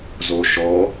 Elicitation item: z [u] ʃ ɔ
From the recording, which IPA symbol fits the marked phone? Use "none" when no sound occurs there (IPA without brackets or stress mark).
o